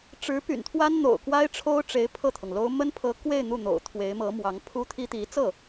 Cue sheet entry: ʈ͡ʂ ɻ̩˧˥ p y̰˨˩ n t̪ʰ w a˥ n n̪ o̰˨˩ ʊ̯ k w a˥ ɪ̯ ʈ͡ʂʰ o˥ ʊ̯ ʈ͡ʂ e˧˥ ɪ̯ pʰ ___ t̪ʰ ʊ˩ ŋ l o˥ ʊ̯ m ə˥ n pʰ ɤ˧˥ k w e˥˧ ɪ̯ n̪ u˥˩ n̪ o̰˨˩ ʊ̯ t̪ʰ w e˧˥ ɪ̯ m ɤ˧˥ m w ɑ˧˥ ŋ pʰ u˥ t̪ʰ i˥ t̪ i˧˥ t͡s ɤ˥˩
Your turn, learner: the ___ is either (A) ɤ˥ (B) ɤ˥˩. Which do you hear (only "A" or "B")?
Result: B